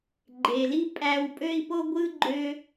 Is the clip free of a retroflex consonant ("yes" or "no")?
yes